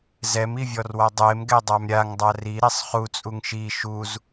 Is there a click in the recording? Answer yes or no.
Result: no